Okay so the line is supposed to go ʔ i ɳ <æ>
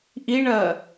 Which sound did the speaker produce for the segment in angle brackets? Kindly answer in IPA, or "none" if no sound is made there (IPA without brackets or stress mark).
ɜ